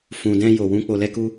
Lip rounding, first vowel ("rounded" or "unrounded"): rounded